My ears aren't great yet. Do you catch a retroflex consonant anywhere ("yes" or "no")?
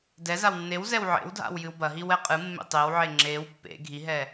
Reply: no